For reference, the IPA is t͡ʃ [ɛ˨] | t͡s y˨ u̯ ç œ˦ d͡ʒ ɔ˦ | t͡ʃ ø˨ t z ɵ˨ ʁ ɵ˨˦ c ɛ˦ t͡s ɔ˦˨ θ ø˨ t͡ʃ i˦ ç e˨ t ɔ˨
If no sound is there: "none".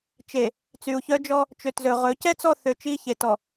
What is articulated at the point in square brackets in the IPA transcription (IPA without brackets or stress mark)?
e˨